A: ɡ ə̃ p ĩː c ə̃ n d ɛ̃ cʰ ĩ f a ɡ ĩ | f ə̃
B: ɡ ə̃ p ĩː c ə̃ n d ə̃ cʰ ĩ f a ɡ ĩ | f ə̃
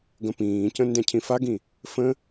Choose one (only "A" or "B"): A